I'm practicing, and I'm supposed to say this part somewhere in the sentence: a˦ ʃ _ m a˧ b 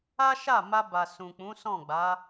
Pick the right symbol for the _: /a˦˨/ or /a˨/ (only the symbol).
a˦˨